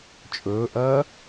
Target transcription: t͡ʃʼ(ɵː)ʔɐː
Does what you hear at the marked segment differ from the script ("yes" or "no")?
no